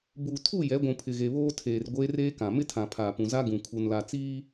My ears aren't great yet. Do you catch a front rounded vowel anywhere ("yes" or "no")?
no